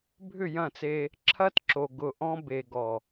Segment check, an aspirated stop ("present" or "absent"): present